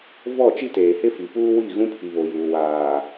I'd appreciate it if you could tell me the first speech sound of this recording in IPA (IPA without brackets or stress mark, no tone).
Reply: v